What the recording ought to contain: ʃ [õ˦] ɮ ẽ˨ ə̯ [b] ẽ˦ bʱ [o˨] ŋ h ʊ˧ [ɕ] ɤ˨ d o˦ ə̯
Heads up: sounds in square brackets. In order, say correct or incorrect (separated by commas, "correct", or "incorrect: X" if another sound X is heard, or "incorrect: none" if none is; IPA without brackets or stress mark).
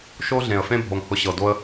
incorrect: o˦, incorrect: f, correct, correct